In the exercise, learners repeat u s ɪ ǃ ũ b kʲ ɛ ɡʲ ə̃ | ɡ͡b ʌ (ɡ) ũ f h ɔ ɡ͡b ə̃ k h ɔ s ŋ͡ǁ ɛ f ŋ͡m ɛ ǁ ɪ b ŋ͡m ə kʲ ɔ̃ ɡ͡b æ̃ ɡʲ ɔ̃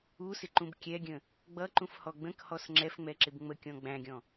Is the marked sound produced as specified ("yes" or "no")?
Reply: no